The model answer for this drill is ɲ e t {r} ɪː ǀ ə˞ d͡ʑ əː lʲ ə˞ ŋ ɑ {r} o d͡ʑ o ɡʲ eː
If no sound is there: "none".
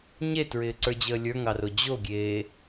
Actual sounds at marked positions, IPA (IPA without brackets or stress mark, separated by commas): ɹ, r